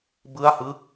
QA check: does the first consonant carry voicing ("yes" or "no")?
yes